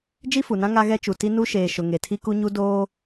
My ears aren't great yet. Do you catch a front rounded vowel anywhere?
no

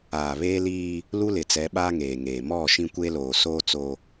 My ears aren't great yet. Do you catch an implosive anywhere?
yes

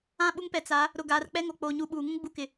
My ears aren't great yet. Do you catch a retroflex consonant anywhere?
no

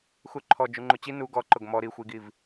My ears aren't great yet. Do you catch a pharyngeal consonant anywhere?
no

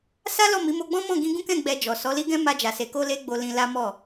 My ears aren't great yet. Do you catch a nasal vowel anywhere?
yes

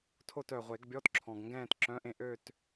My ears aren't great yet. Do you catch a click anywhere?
yes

